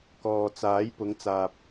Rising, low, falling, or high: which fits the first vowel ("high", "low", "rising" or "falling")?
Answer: low